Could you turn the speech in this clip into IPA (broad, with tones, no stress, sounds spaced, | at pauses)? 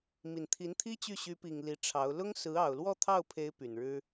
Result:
m i˨˩ n t̪ʰ i˧˥ n t̪ʰ i˥ t͡ɕ y˥˩ ɕ y˧˥ p i˨˩ ŋ l i˧˥ ʈ͡ʂʰ ɑ˧˥ ʊ̯ l ʊ˥ ŋ s ɹ̩˧˥ ɑ˨˩ ʊ̯ l w ɔ˥˧ t̪ʰ ɑ˥˩ ʊ̯ pʰ e˧˥ ɪ̯ p y˨˩ n ɻ ɻ̩˥